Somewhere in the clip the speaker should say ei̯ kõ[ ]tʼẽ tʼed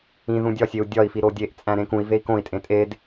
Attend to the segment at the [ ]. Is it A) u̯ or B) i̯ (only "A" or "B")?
B